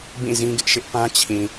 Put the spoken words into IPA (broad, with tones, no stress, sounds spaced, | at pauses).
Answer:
b ĩ˦˨ z ĩ˦ ɡ ɪ˦ ʔ ʃ ɪ˦ ʔ p ã˦ t͡ɕʰ ĩ˨